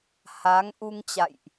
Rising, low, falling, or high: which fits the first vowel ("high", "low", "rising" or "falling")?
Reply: rising